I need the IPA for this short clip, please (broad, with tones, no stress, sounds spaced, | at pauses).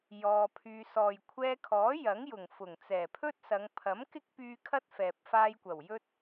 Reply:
j ɔː˧ pʰ yː˧ s ɔː˨ j kʷʰ ɛː˧ kʰ ɔː˨˥ j ɐ˨˥ ŋ j ʊ˨˩ ŋ f ʊ˨˩ ŋ t͡s ɛː˨˩ pʰ ɵ˥ t̚ s ɐ˨˧ ŋ pʰ ɐ˨˥ m k ɪ˥ k̚ p yː˧ kʰ ɐ˥ t̚ f ɛː˨ p̚ f aː˧ j kʷ ɐ˨˩ w j ɵ˧ t̚